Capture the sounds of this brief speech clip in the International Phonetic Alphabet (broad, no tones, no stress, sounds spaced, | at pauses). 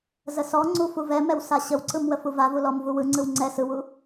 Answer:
z ə s ɔ ŋ͡ǀ u f u v ɛ m ɛ w s a ɕ ə w ǀ ɯ m w ə f u v a v u l ɔ m v u w ɯ ŋ͡ǀ ɯ w ŋ͡ǀ ɛ s ɯ w u